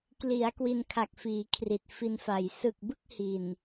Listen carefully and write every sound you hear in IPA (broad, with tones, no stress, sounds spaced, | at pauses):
k l i˩˦ a̯ k w i˧ n kʰ a˨˩ k̚ f iː˩˦ kʰ r i˨˩ t̚ f i˧ n f a˨˩ j s ɯ˨˩ k̚ b ɯ˥˩ k̚ h i˨˩ n